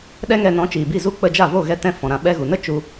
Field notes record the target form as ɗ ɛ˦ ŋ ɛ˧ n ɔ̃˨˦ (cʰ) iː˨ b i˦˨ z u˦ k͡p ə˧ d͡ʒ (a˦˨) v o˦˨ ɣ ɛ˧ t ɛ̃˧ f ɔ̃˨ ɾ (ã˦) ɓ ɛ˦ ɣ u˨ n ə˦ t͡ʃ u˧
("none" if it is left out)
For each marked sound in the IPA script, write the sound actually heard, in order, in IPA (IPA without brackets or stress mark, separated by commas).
t͡ʃ, a˦˨, ã˨